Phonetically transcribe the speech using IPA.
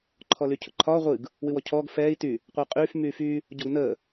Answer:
ǃʰ ɔ l y cʰ ʊ ǃʰ ɒː ʁʷ ɨ ɡ | w ɨ w ɔ cʰ ɔː ɡ f ɛː i̯ t y | qʷ əː qʼ yː f m yː f yː | ɟ ɔ ɡ n əː

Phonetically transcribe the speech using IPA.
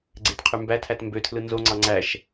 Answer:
ɡ͡ǀ e t qʰ y m b æ tʰ æ t m b ø tʰ l ɯ n z o ŋ͡ǀ ɑ ŋ͡ǀ æ ʃ

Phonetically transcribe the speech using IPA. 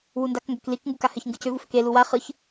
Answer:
w u n d a k ŋ ɡ ʏ k l i k ŋ ɡ u k a h ɘ ç ŋ ɡ ɯ c ʏ v u f ʏ k e l u w a χ ɯ ç

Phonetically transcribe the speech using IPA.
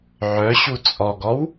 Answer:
ʕ œ ɕ u t͡sʼ ɔ ɡ ɔ w

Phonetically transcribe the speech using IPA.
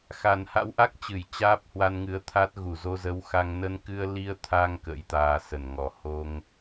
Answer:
x a˨˩ n h a̰˧˥ w ʔ a˦˥ k̚ t͡ɕ ɨ˧˩ j t͡ɕ aː˦˥ p̚ h w a˧ n ŋ ɨ˨˦ ə̯ t̪ʰ a˦˥ t̚ ɣ u˧˩ z o˧ z ə˨˦ w x a˧ ŋ n ə˧ n k ɨ˧ ə̯ l i˧ ə̯ t̪ʰ a˧ ŋ k ə̰˧˥ j t̪ aː˧ s ə˧˩ n ŋ ɔ˨˩ h o˧ ŋ

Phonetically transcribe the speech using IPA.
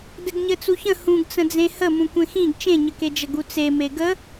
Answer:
d ɘ ɡ ɲ ɘ t͡s u ç ə̃ h ũ ɡ t͡s ə̃ d͡z ẽ h ə m ũ kʷ ẽ x ĩ ɡ t͡ʃ ẽ ɲ ɘ k e d͡ʒ ə ɡ u t͡s e m e ɡ ə

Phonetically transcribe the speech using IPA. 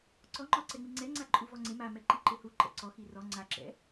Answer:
ǀ ɔ ŋ͡ǃ ɔ ǀ ɛ ŋ͡m i ŋ͡ǀ ɛ ŋ͡ǀ a ǃʼ u v ɔ ŋ͡ǀ ɪ m a m ɛ ǃ i ǃ ɪ h u ǃ ɛ̰ ǀ ɔ x i r ɔ ŋ͡ǀ a ǁ ɛ̰

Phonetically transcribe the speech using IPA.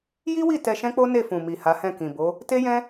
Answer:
j i˦ w i˦˨ t ɛ˧ ʃ ɛ̃˦ k͡p o˦ n e˦˨ f ũ˨ m i˨ h a˨˦ h ɛ̃˦˨ k ĩ˨ b o˨˦ | t e˦ j ɛ̃˦

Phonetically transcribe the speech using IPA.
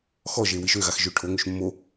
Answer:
x ɔ ʒ e w i ʃ ø ɣ a x ʒ ø ʈʰ o ŋ ø ʃ mː o

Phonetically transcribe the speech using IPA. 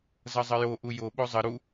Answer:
z ʌ zˤ ə j o ʔ u j o ɓ o zˤ ə ɾ u

